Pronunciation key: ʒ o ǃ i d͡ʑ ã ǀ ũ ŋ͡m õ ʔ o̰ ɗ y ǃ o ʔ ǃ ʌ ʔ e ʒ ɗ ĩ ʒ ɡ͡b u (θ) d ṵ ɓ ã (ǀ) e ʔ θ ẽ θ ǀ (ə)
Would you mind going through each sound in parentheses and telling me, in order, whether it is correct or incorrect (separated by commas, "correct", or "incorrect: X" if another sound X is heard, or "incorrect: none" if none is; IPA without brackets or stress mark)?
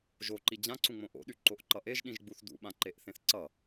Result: correct, incorrect: ǃ, incorrect: ʌ